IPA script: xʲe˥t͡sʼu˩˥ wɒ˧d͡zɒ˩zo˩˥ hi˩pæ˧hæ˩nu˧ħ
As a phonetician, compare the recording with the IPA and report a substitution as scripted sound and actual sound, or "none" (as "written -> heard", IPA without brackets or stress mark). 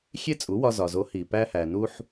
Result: d͡z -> z